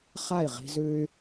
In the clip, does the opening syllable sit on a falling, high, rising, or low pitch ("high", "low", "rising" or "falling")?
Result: falling